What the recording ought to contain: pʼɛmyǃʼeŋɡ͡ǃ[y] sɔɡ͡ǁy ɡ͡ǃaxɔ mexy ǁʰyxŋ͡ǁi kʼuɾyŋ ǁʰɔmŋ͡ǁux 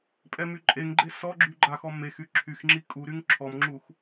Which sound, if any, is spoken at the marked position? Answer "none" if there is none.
e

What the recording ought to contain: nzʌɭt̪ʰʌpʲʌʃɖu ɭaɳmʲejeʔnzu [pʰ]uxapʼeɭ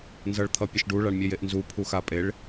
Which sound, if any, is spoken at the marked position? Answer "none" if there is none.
pʰ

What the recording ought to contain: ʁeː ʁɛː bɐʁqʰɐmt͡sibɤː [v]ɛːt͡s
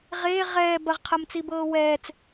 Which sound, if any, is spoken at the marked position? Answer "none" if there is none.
w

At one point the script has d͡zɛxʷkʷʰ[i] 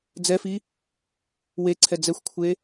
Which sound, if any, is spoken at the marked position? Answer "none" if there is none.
e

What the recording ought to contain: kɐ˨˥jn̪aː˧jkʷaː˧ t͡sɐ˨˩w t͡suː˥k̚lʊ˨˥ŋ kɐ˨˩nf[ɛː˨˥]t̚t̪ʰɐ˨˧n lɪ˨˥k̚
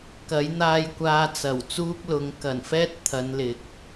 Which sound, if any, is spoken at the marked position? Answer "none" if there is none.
ɛː˥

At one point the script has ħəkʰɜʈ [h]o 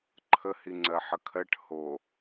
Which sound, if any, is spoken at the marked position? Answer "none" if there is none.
h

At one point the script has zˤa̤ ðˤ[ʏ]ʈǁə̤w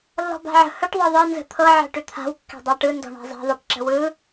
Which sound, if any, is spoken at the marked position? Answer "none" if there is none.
ɛ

